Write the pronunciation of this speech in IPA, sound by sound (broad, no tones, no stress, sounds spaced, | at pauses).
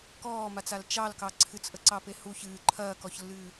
k ɔː m a t͡s a l t͡ʃ ɑ l k ɑ ǀʰ ɨ t͡s ʔ ə ǀ ɑ p e h u ç ɨː ǃʰ ɐː k ɔ ç lː ɨː